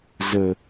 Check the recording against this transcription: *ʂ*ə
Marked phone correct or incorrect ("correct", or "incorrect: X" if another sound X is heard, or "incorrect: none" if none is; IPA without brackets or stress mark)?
incorrect: z